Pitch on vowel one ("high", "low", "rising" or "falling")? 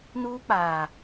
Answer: high